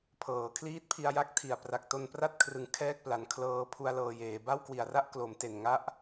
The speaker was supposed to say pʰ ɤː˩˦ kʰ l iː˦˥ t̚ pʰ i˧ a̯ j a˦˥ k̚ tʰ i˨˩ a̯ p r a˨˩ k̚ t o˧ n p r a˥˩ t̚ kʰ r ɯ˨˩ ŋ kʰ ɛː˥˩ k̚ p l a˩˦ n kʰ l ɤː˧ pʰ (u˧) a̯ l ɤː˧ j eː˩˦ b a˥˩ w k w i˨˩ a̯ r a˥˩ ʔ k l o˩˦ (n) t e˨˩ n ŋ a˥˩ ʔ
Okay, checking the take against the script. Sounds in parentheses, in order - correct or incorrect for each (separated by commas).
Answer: correct, incorrect